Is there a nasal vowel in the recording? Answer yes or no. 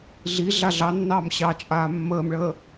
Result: no